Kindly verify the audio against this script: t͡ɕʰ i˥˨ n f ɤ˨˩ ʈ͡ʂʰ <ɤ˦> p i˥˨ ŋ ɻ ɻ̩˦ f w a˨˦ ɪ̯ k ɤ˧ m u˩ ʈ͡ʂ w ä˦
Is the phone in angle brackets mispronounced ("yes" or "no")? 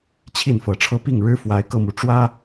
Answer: no